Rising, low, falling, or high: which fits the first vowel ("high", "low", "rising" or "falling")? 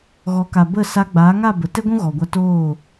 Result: rising